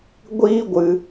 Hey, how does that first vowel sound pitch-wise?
high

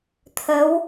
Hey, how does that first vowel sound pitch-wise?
rising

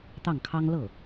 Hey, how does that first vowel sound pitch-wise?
falling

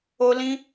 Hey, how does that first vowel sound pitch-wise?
high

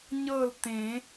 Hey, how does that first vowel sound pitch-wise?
falling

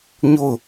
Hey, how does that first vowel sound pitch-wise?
falling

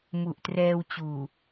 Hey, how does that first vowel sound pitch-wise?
low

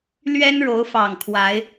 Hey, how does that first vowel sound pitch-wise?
high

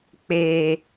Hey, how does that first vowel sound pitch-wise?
low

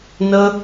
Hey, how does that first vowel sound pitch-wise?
high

